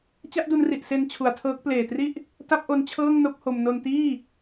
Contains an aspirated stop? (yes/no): yes